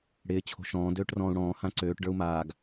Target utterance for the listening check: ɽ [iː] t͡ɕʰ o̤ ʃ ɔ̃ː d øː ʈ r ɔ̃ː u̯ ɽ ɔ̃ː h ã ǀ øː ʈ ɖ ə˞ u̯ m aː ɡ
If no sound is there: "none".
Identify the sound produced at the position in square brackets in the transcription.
ɪː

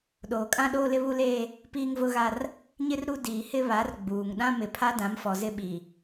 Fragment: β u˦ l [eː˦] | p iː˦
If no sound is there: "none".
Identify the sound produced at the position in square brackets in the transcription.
eː˦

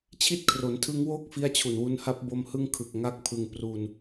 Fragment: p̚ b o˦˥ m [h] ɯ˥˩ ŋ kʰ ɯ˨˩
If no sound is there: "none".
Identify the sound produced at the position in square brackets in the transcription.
h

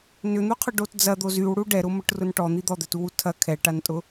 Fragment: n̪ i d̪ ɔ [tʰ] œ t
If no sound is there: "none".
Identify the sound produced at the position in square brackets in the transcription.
d̪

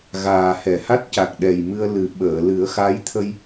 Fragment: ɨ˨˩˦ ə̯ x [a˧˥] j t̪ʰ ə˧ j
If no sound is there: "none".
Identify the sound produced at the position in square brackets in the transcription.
a˧˥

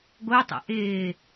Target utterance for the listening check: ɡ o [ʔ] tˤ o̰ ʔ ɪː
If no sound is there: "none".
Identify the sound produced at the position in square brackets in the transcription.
none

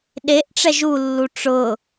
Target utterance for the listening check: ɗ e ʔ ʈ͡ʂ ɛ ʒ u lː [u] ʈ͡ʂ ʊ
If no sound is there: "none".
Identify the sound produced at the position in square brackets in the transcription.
u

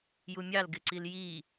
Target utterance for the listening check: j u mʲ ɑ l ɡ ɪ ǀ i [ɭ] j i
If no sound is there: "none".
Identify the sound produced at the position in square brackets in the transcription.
l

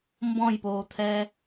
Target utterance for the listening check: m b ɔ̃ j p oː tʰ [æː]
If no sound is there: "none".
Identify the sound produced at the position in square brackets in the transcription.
ɛː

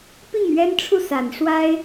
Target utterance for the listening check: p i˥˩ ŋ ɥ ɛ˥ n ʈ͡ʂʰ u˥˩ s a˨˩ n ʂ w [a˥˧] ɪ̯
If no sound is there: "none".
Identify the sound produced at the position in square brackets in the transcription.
a˥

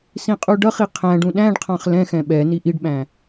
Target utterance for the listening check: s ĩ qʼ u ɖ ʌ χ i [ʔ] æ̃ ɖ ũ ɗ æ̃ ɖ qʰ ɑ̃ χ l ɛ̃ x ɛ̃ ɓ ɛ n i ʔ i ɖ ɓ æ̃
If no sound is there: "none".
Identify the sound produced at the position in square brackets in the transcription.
qʰ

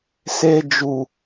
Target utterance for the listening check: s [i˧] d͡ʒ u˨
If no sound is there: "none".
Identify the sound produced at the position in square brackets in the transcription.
e˧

